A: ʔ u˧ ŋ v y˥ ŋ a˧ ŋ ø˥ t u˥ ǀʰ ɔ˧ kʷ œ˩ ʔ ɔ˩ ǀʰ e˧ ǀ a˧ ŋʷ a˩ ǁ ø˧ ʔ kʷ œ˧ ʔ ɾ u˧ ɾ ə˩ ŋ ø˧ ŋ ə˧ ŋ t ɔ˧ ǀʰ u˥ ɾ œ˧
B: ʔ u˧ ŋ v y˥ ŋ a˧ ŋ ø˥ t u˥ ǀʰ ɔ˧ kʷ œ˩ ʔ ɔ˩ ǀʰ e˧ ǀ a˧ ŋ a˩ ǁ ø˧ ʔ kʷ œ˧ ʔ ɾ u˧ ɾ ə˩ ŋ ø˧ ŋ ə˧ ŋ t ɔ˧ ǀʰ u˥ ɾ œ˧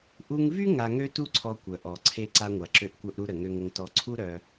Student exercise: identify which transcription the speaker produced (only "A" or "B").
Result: A